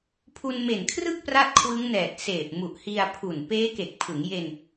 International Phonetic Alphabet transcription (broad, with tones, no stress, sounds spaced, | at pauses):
pʰ u˧ n m e˨˩ n kʰ r ɯ˥˩ k̚ p r a˥˩ t̚ kʰ w ɯ˦˥ ŋ n ɛː˨˩ t̚ s eː˨˩ p̚ m u˨˩ ʔ h i˧ a̯ pʰ u˨˩ n p eː˦˥ k e˨˩ k̚ pʰ ɯ˩˦ ŋ j e˧ n